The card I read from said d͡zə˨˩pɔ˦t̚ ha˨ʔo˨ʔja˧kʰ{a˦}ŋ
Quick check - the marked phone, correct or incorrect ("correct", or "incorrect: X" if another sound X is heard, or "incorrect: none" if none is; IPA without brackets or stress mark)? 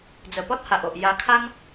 correct